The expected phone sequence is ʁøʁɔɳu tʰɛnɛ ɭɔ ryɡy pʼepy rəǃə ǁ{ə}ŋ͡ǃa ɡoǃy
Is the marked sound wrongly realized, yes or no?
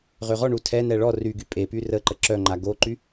yes